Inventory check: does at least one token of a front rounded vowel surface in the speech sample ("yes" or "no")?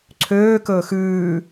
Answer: yes